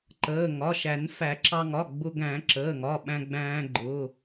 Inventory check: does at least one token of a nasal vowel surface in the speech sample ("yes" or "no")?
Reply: yes